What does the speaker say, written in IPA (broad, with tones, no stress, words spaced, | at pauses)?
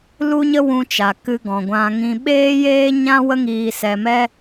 lu˦ɲə˦wũ˧t͡ʃa˨ kɨ˧ɡɔ̃˨ ɡʷã˧ŋĩ˧ ɓeː˦jeː˦ɲã˦ wə˦ŋiː˧sɛ˧mɛ˦